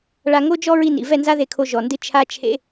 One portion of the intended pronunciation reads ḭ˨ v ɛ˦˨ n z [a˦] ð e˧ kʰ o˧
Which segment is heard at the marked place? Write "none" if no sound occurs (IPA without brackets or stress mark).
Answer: a˦